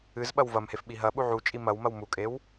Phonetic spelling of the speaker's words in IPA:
ɨz ɓɐwvɐmhef ɓiɦɐ ɓuʕut͡ʃʼi mɐwmɐw mukʼew

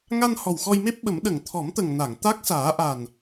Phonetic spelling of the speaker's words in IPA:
ŋa˧n hɔ˨˩wxɔ˧jme˦˥p̚ɓə˨˩˦m ɗə˨˩˨ŋt̪ʰɔ˨˩˦mt̪ə˨˩ŋ na˨˩˨ŋt̪a˦˥k̚ saː˨˩˦ʔa˨˩n

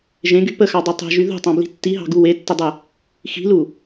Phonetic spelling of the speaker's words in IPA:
ʒẽɡy pəxɑdˤu tˤe̤ʒy ðṳtˤɑ̃bli̤ tːiɦɑ̤ɡu wetːədˤə | xi̤lu

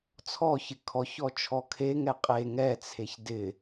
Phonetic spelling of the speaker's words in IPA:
t͡sʰɔçɪ kʰɔçɔ t͡ʃʰɔkʰeŋɛ qʼe ŋɛt͡sʰeç dɪ

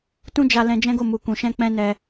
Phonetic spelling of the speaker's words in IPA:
tũ˦d͡ʒa˧ lɛ̃˧d͡ʒɛ̃˦ɡo˦˨ mu˨kũ˨ʃɛ̃˧ k͡pɛ̃˦nɛ˧

